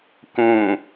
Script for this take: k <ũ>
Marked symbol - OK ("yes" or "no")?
yes